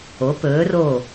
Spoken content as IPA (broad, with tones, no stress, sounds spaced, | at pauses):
o˩˧ p ɵː˩˧ r o˧˩